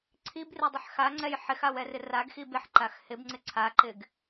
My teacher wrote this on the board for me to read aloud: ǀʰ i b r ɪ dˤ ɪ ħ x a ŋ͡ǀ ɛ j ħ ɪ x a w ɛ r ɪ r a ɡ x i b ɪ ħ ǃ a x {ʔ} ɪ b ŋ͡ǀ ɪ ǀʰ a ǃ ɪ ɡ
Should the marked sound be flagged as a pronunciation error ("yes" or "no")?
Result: yes